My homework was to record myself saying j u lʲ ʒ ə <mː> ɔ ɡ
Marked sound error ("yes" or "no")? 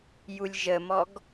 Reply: yes